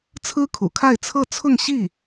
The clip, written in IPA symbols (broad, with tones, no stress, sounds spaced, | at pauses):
t͡sʰ ɹ̩˥ kʰ ṵ˨˩ kʰ a˥˧ ɪ̯ t͡sʰ ɤ˥˧ t͡sʰ ʊ˥˧ ŋ ɕ i˥˩